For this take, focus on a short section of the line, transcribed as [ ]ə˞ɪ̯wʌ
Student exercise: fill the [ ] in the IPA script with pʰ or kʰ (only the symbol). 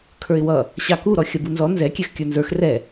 kʰ